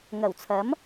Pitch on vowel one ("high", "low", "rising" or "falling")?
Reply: low